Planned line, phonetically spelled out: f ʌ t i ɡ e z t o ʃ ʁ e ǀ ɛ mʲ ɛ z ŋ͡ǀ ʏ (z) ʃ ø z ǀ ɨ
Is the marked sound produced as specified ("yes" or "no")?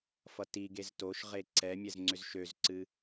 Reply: yes